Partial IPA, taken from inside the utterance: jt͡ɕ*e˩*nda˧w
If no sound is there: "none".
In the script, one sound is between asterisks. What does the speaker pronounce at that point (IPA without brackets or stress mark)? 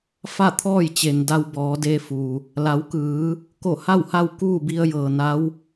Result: e˩